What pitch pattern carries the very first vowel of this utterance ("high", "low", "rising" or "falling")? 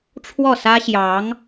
falling